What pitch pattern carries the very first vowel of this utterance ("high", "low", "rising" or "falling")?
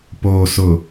low